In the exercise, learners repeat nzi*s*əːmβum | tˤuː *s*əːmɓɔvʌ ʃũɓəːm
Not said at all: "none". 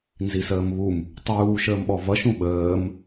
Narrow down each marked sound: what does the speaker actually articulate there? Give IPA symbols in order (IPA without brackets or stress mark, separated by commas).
s, ʃ